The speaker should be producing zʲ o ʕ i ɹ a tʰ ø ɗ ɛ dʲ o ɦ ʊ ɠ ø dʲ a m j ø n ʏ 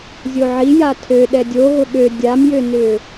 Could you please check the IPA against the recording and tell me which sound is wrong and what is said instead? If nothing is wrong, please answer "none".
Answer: ɹ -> j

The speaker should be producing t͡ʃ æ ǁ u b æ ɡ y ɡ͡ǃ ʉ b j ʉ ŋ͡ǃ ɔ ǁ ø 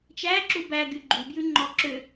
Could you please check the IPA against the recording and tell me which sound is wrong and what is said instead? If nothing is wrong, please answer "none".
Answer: none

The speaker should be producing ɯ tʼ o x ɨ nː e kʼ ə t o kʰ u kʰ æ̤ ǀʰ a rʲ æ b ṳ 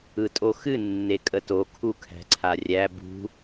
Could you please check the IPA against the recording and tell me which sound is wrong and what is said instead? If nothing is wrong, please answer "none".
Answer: none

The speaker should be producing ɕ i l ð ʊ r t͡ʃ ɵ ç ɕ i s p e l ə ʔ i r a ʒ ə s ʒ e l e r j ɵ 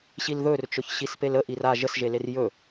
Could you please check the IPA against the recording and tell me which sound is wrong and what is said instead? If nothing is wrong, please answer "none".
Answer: ʊ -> ɵ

